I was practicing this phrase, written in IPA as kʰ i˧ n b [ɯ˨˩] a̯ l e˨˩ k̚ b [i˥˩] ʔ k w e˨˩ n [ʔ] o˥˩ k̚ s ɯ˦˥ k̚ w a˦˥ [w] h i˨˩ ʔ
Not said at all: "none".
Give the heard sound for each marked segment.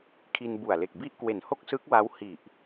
u˨˩, i˥˩, h, w

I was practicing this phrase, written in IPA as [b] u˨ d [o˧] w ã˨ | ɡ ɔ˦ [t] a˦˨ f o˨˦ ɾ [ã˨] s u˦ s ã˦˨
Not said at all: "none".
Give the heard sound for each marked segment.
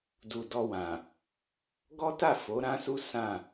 d, ɔ˧, t, ã˦

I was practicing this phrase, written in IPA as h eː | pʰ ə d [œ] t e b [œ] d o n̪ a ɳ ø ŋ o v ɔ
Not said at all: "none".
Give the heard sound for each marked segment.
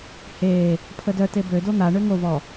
œ, ø

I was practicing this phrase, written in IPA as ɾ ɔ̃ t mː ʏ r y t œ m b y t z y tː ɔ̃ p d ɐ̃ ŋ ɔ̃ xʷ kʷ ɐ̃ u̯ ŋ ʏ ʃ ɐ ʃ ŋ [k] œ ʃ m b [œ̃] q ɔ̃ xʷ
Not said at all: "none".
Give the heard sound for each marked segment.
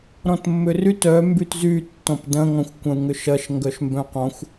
ɡ, œ̃

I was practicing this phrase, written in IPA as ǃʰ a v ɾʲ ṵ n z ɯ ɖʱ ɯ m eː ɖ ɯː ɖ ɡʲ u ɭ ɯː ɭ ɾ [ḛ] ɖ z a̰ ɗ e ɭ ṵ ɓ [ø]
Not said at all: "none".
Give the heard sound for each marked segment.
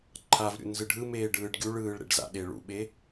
ḛ, e

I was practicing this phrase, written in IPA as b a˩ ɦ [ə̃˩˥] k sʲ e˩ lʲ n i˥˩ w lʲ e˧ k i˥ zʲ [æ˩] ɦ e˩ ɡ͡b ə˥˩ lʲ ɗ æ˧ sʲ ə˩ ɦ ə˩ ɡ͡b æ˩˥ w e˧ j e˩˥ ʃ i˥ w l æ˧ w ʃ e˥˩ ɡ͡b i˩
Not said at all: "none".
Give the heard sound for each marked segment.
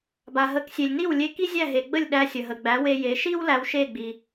ə˩˥, æ˥˩

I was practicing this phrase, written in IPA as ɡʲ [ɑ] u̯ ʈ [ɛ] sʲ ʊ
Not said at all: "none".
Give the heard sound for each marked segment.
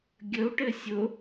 ə, ɘ

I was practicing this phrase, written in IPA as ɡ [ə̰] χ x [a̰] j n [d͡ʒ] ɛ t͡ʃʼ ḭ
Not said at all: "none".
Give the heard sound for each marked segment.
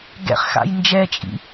ɛ̰, a̰, d͡ʒ

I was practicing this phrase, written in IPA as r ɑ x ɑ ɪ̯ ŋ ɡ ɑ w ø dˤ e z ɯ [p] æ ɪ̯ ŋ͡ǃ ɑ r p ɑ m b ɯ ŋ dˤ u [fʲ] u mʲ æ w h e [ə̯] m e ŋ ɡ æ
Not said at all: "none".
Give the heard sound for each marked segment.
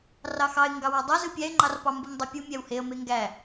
pʲ, pʲ, ə̯

